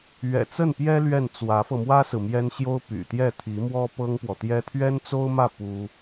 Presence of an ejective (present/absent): absent